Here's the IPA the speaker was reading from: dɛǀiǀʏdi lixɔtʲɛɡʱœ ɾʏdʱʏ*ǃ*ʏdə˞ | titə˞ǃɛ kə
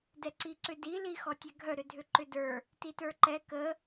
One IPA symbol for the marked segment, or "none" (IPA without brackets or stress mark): ǃ